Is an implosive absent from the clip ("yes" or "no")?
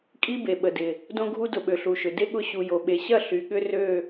no